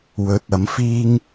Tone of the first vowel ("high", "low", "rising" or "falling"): rising